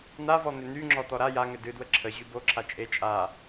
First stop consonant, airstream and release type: click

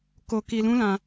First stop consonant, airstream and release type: plain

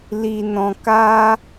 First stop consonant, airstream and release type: plain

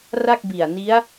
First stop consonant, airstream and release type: plain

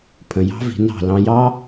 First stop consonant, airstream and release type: aspirated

